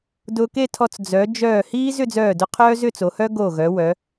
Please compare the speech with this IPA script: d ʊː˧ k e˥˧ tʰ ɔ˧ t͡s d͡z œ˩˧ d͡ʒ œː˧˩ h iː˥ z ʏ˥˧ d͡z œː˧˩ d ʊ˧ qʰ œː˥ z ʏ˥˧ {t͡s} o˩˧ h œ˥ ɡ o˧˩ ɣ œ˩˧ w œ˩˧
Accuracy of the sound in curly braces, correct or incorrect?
correct